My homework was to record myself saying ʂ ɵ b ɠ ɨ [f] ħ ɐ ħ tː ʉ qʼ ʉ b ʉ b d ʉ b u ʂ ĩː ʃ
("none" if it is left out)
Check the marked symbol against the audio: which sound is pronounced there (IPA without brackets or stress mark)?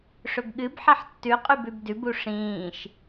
b